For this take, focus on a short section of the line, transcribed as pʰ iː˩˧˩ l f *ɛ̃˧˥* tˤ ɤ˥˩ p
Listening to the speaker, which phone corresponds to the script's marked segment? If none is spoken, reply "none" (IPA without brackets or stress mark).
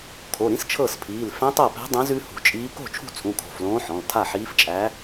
ɛ̃˧˥